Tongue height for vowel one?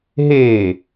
mid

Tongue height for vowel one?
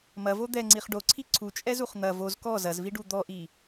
low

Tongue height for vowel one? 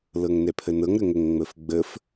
mid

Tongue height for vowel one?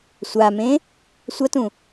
low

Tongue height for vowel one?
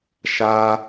low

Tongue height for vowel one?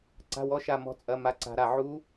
low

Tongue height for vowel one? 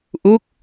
high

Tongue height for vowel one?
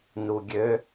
high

